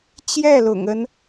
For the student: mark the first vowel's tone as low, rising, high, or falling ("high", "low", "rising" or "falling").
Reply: falling